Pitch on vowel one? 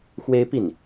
high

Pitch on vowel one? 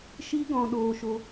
high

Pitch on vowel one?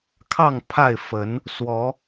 falling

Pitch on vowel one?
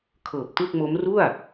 low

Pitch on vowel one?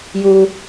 low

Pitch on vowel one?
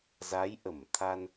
rising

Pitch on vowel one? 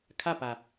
falling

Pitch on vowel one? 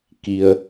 low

